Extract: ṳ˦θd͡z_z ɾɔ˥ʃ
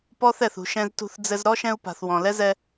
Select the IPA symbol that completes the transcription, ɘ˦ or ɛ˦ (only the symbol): ɘ˦